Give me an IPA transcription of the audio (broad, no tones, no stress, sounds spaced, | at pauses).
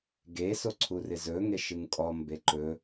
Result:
ɡ e s o ǀʰ u r ɪ z ɵ ŋ e ʃ ɨ ŋ kʼ ɔ m b e ǃ ɵ